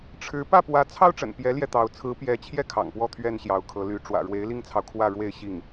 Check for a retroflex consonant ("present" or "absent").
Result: present